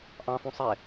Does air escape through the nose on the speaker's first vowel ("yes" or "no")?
yes